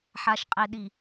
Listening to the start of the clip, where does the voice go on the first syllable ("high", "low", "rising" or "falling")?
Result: low